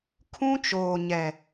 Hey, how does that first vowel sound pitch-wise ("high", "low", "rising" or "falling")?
high